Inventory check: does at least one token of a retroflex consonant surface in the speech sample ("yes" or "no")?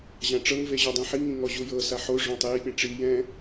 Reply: yes